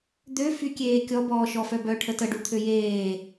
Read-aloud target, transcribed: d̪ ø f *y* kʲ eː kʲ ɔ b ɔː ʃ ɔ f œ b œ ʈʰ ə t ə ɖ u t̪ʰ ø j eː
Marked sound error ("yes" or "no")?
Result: no